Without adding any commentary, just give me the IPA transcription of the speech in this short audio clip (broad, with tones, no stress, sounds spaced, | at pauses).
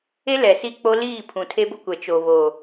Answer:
e˦ l ɛ˨ s i˦ k͡p o˦ l iː˦˨ pʰ ũ˨ tʰ e˦ b ʊ˦ kʷ ɛ˨ t͡ʃ o˨ β o˨